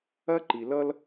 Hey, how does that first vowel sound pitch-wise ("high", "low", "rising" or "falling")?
high